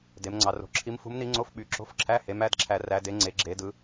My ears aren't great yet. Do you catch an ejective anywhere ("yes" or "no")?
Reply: no